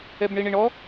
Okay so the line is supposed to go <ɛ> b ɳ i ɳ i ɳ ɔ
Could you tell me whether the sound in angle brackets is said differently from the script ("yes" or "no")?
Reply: no